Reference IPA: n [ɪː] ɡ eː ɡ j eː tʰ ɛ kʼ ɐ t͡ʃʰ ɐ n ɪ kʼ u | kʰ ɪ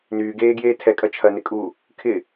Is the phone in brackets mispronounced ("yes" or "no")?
yes